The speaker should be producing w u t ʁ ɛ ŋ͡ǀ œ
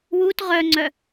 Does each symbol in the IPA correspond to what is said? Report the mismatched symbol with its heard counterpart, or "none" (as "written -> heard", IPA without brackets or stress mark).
ɛ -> œ